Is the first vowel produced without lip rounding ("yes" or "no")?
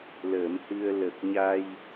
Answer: yes